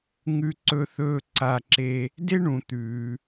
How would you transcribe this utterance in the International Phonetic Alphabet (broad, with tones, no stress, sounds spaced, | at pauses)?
ŋ ʉ˥ ǀ ɵ˥ θ ɵː˥ ǀ a˥ ǁ e˥ | d e˥ ɳ ũ˧ t̪ ʉː˧